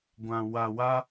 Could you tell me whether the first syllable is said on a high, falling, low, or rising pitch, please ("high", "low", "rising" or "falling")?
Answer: low